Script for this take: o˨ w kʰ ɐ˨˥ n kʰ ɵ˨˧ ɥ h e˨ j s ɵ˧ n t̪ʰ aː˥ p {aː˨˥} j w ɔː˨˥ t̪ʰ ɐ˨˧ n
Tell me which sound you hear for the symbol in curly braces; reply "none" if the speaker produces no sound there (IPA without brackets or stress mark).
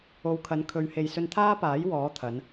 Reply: aː˨˥